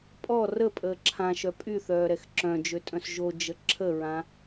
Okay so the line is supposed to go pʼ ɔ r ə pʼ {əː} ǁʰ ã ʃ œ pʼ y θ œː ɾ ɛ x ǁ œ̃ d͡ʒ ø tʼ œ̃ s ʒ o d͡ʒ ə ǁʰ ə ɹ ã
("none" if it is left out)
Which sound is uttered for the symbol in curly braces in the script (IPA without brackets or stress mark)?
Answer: əː